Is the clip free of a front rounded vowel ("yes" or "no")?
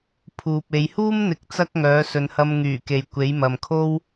no